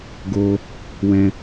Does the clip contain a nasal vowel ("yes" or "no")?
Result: yes